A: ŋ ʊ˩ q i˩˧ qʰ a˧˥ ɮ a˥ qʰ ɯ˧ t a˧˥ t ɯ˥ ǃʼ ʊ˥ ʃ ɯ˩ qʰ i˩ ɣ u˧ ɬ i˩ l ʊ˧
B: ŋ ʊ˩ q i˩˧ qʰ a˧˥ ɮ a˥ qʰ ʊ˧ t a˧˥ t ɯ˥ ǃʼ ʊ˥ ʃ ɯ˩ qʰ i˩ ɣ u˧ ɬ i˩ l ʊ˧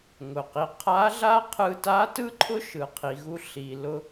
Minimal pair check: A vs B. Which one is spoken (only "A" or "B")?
A